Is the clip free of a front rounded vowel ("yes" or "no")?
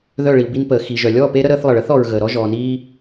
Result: no